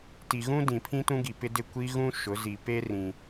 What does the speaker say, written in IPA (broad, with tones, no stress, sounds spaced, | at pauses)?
t i˨ ɣ ũ˦ d ĩ˨ pʰ ĩ˦ t ũ˦ ɡ i˨ p ɪ˦ d ɪ˦˨ kʷ i˦ ɣ ũ˦ ʃ ʊ˨˦ z i˨ p e˦ r ĩ˦